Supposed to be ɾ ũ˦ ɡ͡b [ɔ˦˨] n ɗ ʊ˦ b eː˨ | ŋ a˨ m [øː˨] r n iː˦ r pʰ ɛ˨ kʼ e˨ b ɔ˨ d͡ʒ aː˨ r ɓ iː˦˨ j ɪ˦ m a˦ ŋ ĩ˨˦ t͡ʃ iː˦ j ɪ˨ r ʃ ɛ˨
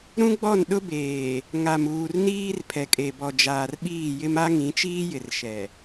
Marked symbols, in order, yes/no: yes, no

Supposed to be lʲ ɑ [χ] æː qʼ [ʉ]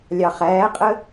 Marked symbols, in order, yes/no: yes, no

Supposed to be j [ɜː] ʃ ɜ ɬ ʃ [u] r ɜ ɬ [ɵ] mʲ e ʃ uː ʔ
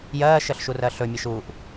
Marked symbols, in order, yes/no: yes, yes, yes

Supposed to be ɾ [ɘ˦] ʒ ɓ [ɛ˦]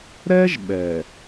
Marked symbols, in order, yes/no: no, no

